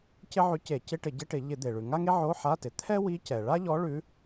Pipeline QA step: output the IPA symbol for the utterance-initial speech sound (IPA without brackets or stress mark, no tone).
c